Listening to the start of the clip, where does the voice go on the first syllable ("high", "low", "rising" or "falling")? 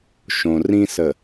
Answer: low